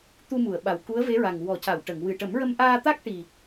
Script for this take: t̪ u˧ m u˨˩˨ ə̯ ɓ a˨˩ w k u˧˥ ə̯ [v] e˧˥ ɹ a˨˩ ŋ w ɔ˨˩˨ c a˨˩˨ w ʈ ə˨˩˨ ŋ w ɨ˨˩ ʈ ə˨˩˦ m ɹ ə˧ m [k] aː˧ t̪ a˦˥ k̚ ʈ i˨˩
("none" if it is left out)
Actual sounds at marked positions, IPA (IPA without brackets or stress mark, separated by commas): v, ʔ